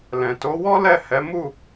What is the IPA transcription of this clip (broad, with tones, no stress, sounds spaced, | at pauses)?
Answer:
l ɛ̃˨ t o˨˦ w ɔ˦ l ɛ˦˨ h ɛ˨˦ m u˦˨